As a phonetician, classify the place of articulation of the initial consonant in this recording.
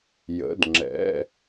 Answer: palatal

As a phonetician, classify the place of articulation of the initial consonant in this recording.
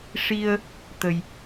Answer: retroflex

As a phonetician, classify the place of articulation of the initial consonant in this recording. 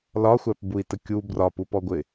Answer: alveolar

